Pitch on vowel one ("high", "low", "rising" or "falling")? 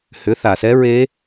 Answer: rising